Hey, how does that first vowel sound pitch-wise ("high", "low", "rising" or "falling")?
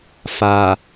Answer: low